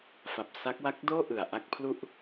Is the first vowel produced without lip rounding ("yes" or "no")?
yes